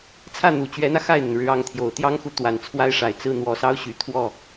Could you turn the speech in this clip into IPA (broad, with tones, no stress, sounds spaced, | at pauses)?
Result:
t͡sʰ ä˥˩ n̪ u˨˩ t͡ɕ ɥ ɛ˧˥ n̪ ä˧ x a˥˩ ɪ̯ n̪ ə˩ n ɻ ɻ̩˧˥ ɑ˧˥ ŋ t̪ʰ j o˨˩ ʊ̯ t̪ j ɑ˥ ŋ x u˧˥ t̪ w a˨˩ n t͡sʰ w a˥ ɪ̯ ʂ a˨˩ ɪ̯ t͡s ɹ̩˥˩ n̪ w ɔ˨˩ s ɑ˥ ʊ̯ ɕ y˨˩ t̪ʰ w ɔ˥˩